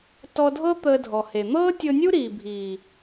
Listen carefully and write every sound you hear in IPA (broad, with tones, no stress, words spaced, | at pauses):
tɔ˧dʱɤ˦ t̪əː˧dʱɔ˨he˨ n̪ɤː˦tʲɤ˧nʲu˦ ɾiː˨bʱiː˨